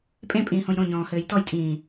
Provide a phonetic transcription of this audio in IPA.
pʼ ẽ pʼ ĩː h õ j ɾ õ ɲ ɔ̃ː h ɘː j t ɔ j tʼ ĩː

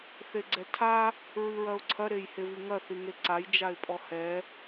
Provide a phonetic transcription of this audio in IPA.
θ e ɡ͡ǀ ɛ tʰ a | ɹ ɨ ɹ ɐ ʊ̯ ǀʰ ɐ ɾ e j h e v i ŋ ɐ θ i ŋ e ǀ a j d͡ʒ a ɪ̯ pʼ ɔ h ɛ

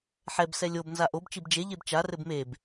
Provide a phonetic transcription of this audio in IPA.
ħ ɛ b s ɛ lʲ o b n z a ʔ o b t͡ʃ i b d͡ʒ e ʎ e b t͡ʃ a r ɘ b m e b

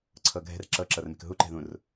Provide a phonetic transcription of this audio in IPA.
ǀʰ ɤ ɡʱ ɛ̤ r ǁ ɤ ǁ ɤ r m e̤ k ɦ u ǃ ɛ̤ ð ũ r

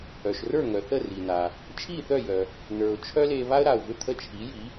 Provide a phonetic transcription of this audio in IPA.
œ˩ ʃ r ə˞˥˩ ŋ œ˩ θ ə˥˩ r i˩ n a˩ | t͡ʃʰ i˥˩ θ œ˥˩ j œ˩ | n ə˞˩ ʊ̯ t͡ʃʰ œ˥ l e˧ β a˥ ə̯ ɾ a˩ ʊ̯ v ʏ˥˩ t̪ʰ ə˥˩ t͡ʃʰ i˩˥ j i˩˥

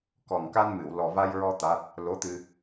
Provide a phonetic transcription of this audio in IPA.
k ɔ˨˩ ŋ k a˧ n m ɨ˨˩˨ w l ɔ˨˩ v a˧ j ɹ ɔ˧ t̪ a˦˥ t̚ | l o˧˥ t̪ ɨ˧

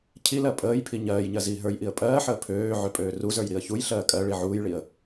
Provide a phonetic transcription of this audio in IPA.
cʰ i l ɜ pʼ əː j pʰ i ɲ ɜː j ɲ ɜ z iː ɦ ə˞ j ʔ i ə̯ pʼ ɜː ħ əː pʰ øː ʕ ø pʼ øː r u z ə˞ j ɾ i ə̯ ç u j ɬ ɜː kʼ ɜ ɭ i ʕ uː j ɭ i ə̯

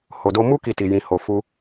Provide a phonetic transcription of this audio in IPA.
h o˨ d o˧ m u˦ k i˧ t i˨ j ĩ˨ h o˨ f u˧

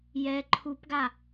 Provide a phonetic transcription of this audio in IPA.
j ɛ ǃʰ u p ɡ a

